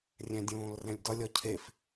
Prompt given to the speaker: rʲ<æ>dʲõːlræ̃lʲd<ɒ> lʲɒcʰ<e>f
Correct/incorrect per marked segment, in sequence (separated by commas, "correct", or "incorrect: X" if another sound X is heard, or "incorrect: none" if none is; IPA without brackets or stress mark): incorrect: æ̃, correct, correct